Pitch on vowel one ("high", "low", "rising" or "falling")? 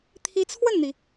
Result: rising